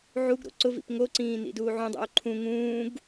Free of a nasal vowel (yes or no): no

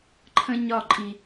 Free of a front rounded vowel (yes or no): yes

